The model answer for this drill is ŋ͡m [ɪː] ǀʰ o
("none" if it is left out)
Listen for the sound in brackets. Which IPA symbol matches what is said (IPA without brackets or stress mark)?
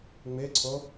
ɪː